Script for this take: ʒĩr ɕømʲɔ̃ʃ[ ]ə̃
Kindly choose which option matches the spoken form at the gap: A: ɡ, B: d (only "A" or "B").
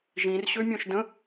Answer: B